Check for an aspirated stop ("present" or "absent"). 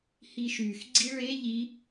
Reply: absent